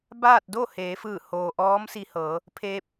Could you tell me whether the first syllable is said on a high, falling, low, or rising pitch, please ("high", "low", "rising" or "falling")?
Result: falling